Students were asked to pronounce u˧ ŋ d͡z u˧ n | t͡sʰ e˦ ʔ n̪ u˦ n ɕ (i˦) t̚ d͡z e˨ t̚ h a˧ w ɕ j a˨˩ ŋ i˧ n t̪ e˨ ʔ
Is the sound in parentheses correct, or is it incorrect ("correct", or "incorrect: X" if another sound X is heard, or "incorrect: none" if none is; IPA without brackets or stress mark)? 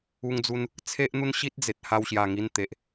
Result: correct